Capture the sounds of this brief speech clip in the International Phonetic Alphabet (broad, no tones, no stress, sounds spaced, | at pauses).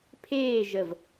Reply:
pʰ eː ʒ ə v